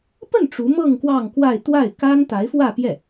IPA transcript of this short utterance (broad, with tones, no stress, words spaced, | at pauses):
pə˥˩n ʈ͡ʂu˧˥mɤ˥˧ŋ kwɑ˥˧ŋkwa˥˧ɪ̯ t̪wa˥˩ɪ̯ka˥n t̪a˧˥ɪ̯fwä˥˧pjɛ˥˩